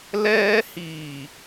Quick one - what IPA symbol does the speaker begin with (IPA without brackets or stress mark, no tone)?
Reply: l